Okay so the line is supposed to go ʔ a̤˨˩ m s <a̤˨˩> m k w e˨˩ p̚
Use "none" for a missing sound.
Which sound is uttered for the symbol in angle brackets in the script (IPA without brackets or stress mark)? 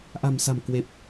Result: a̤˨˩